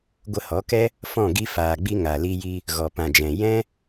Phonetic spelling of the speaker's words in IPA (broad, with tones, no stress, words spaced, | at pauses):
ɡʷə˧hɔ˨˦kɛ˦ | fɔ̃˦˨ ɡi˧faː˨ɡ͡bi˧ ŋa˨li˧ji˧ | ɣɔ˨pã˨d͡ʒɛ̃˨ jɛ̃˦